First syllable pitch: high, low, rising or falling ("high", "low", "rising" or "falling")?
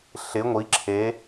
rising